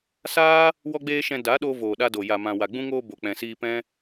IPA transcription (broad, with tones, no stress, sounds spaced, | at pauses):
s aː˦ | w ɔ˦ ɡ͡b eː˦ ʃ ɛ̃˧ d a˨˦ ɗ o˧ v oː˨ ɗ a˧ d o˨ j a˨ m ã˨ w a˨ ɡ͡b ũ˧ ŋ oː˧ b o˨ k͡p ɛ̃˨ s iː˧ p ɛ̃˦